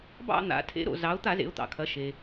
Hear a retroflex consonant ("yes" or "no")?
no